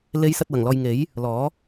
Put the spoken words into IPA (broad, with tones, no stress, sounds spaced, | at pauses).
l e˨˧ j s ɐ˨ t̚ w ɐ˨˩ ŋ l ɔː˨ j ŋ e˨˥ j | l ɔː˨˥